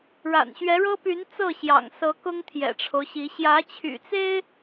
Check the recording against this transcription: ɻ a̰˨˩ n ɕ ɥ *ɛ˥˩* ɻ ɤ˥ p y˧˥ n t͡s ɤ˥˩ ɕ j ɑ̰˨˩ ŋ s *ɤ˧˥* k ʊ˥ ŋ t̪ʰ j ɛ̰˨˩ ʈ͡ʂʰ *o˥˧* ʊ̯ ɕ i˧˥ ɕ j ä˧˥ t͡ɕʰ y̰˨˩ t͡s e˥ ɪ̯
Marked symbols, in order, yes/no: no, yes, no

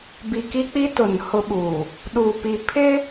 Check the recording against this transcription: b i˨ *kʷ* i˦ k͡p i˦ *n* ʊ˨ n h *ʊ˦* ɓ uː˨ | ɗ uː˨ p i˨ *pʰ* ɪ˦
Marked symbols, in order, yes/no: no, no, yes, yes

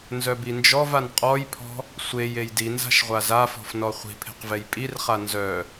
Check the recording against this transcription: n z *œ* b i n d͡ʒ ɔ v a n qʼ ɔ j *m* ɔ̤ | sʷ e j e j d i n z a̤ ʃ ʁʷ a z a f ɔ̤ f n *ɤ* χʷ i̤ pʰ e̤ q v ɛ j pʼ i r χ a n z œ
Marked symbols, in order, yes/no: yes, no, no

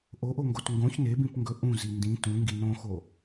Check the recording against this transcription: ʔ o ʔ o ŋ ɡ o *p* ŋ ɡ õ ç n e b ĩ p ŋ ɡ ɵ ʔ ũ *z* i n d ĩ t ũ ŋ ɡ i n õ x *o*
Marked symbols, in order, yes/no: no, yes, yes

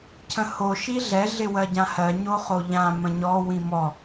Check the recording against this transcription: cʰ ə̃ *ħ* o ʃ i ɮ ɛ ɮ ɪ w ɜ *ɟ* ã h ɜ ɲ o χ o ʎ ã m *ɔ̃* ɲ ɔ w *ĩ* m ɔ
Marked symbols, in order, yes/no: no, yes, no, yes

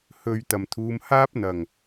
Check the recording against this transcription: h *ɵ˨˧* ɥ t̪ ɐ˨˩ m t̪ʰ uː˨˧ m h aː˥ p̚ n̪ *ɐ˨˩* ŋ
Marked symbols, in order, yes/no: no, yes

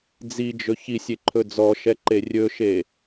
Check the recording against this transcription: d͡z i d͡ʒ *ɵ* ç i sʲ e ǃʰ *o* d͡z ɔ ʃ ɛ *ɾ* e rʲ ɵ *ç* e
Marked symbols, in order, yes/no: yes, no, no, no

